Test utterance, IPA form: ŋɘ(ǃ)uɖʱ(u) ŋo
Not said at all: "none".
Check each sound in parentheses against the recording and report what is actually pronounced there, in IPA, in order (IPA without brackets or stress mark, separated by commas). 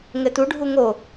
t, u